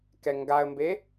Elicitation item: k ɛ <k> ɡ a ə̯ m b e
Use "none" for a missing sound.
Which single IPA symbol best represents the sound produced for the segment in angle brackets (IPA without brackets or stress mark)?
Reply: ŋ